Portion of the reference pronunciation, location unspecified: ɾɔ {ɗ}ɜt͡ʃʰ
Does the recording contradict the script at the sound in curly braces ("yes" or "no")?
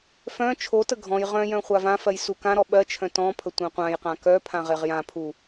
yes